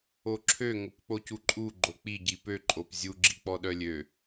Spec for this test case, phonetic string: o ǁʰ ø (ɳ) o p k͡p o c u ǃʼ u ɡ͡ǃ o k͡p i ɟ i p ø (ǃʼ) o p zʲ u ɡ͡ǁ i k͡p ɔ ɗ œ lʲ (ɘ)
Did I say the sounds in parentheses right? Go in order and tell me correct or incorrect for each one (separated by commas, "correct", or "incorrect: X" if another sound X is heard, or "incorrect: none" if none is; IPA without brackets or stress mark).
incorrect: ŋ, correct, incorrect: ø